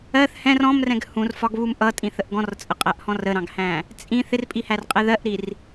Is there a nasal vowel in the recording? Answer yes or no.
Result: yes